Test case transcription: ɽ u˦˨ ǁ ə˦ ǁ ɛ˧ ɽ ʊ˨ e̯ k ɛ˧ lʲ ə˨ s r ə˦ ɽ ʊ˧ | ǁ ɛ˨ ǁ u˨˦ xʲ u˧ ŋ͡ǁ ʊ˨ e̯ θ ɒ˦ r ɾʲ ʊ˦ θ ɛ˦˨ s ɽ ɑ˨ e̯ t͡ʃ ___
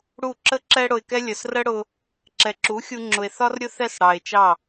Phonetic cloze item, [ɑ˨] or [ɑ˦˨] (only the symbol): ɑ˦˨